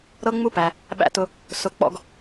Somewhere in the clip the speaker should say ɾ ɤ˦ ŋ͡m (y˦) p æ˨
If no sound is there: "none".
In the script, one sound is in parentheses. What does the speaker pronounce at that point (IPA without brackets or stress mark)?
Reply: u˦